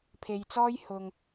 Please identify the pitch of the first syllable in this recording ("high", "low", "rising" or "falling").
low